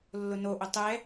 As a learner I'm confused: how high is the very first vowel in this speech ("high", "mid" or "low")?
high